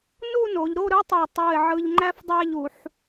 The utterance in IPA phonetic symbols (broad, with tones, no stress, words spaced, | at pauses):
nu˥˧no˩˧ʎɾo˥˧ ɾɯ˥tˤɜ˧˩ tˤu˧˩ɪ̯ʕɯ˧ʎŋ͡ǃæ˥fdˤæ˥˧ʎ u˩˧ħ